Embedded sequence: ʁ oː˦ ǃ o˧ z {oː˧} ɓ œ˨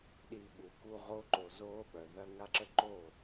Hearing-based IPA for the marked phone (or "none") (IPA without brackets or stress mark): oː˦